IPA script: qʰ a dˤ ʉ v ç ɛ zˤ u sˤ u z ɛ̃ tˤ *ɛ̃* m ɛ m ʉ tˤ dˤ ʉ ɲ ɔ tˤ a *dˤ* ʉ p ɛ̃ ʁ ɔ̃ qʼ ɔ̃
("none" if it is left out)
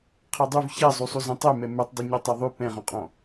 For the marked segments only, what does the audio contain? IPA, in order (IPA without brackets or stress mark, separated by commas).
ɛ, ðˤ